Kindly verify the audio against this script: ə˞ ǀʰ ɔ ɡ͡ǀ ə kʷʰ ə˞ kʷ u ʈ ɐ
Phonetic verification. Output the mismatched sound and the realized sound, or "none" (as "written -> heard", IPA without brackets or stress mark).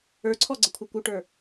ɐ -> ə˞